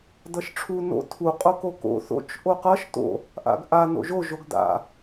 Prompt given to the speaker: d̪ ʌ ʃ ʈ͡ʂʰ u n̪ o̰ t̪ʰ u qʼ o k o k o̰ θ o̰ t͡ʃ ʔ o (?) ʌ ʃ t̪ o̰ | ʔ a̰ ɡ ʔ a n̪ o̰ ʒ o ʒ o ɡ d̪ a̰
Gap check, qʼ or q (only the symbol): q